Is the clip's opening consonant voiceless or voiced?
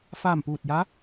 voiceless